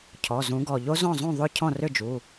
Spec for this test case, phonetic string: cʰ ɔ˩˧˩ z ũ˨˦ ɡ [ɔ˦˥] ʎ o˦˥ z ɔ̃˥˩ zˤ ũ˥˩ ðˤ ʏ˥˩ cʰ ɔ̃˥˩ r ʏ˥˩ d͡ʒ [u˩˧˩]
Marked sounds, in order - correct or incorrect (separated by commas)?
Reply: incorrect, correct